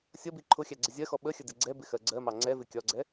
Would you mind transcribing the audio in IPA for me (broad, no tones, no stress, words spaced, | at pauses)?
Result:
sʲʌbi ǃʰʊxʲæ ɡ͡ǀɪzʲɜxɔ ɓəxʲə dɪɡ͡ǀɛbɪ xɜɡ͡ǀɜmɑ ŋ͡ǀɛvɪ kʲɒɡ͡ǀɛ